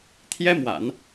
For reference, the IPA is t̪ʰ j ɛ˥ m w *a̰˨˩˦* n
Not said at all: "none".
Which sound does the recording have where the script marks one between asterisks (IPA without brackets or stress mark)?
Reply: a̰˨˩˦